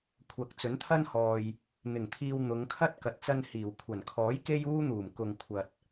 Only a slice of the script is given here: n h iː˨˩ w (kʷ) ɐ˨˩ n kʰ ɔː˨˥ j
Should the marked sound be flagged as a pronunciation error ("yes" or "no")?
yes